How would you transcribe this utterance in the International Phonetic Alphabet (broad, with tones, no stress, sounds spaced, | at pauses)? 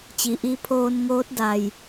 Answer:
t͡ɕ i˩ ʔ i˧ pʰ oː˧ n ŋ oː˧˥ t̚ d a˩ j